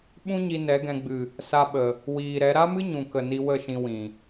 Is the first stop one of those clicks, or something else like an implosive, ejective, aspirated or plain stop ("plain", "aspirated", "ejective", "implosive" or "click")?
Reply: implosive